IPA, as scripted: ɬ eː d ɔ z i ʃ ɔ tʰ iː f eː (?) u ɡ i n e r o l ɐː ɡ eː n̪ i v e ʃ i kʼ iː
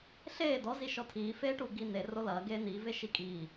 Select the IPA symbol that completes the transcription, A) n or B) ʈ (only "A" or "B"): B